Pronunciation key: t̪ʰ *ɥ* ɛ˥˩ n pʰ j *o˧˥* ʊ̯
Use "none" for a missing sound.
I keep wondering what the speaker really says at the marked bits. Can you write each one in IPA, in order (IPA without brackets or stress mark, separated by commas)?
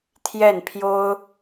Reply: j, o˥